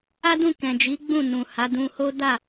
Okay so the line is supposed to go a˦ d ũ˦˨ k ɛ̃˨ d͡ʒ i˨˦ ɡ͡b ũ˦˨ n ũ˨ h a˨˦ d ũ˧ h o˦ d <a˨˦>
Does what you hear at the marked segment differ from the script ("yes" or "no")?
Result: yes